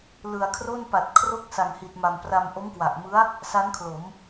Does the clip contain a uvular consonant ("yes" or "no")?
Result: no